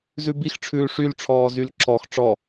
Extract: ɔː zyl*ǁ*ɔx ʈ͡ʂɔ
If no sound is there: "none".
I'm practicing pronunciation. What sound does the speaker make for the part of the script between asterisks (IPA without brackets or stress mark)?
ǁ